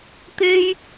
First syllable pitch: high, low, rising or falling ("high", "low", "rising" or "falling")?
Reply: high